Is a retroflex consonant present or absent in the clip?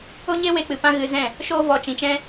absent